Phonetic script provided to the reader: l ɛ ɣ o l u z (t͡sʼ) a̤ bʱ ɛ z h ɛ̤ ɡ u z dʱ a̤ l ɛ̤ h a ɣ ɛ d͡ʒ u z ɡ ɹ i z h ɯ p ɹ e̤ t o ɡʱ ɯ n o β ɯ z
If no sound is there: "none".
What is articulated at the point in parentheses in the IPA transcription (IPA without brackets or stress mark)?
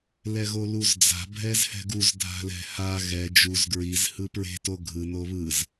d͡z